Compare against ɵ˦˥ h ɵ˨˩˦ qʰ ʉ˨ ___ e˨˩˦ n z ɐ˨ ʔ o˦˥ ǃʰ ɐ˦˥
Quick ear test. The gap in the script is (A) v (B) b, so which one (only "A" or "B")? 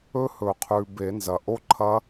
B